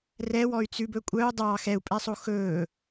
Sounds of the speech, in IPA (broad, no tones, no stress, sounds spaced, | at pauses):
r ɛ w ɔ y̯ t͡s ʉ b ɵ kʷʼ œ u̯ dˤ ɑ x ɛ u̯ pʼ ɛ sˤ o x ɵ